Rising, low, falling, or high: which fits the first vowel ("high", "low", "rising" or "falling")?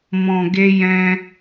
low